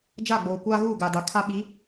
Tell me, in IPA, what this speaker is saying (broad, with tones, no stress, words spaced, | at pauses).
d͡ʒa˦˨ɡ͡boː˨kʷaː˦ ɣuː˦˨ɡaː˨da˨ kʰa˦ɓi˨˦